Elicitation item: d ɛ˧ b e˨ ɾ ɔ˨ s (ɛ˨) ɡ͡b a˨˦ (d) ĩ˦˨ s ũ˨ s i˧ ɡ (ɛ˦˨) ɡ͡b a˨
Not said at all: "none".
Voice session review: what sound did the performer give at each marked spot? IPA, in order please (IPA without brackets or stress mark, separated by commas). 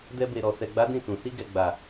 ɛ˨, d, ɛ˨